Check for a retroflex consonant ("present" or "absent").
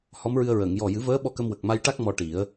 present